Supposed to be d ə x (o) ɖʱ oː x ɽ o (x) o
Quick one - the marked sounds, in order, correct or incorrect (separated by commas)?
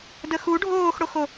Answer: incorrect, correct